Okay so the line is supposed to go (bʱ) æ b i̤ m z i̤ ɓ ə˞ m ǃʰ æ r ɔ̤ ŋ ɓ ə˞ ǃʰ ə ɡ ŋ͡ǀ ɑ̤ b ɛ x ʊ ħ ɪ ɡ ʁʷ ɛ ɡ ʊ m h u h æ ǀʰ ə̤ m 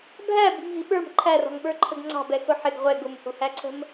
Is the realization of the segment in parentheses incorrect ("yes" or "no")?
no